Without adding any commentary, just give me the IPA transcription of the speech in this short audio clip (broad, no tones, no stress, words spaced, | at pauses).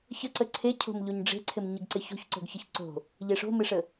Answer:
çəǀə ǀʰecʰo̤m ʎoɲɖ͡ʐe̤ǀʰɪm ɲɪɡǀɪço̤ç ǀo̤ɡçəçǀo̤ | ʎeʂo̤mɪʂə